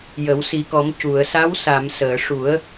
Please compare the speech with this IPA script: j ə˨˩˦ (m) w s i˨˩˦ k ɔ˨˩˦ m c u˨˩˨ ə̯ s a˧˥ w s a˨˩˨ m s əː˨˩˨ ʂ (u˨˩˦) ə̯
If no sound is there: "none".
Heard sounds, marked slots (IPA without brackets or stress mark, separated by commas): none, u˨˩˦